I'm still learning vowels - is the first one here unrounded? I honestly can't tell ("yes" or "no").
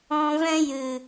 no